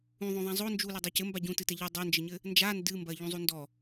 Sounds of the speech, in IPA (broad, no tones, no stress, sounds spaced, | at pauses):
ũ ðˤ õ ðˤ ɛ̃ zˤ o n d͡ʒ u l e dˤ e c ɘ m b a ɟ ũ t ɨ t ɛ ʎ i dˤ ɘ n d͡ʒ ɘ ɲ ɘ | n d͡ʒ a n d ɨ m b ɐ ʎ ũ zˤ u n d ɔ